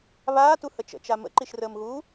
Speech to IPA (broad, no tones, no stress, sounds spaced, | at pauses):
β aː t u h ə t͡ʃ ə̰ t͡ʃ a m ə̰ ǃ i ʃ r əː m ɣ uː